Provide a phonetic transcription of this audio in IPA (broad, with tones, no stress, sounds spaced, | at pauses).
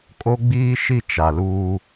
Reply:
kʼ o˦ ɡ͡b iː˦ ʃ i˦˨ t͡ʃ a˨ l uː˦